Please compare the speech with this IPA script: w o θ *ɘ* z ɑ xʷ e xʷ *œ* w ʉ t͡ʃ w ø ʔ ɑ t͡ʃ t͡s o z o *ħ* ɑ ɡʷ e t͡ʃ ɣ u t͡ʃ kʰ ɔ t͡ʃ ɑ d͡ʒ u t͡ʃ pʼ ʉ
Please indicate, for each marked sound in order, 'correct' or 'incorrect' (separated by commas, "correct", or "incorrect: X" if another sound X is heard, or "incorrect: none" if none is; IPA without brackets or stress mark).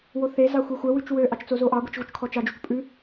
incorrect: e, correct, incorrect: ʔ